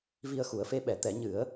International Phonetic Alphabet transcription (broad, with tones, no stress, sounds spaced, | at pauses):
v i˧ ə̯ x u˨˩˦ ə̯ f e˧˥ ɓ ɛ˨˩˦ t̪ ɛ˨˩˦ ɲ ɨ˨˩˦ ə̯